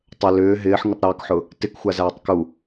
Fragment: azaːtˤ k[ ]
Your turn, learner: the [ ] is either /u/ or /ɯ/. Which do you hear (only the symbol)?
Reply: u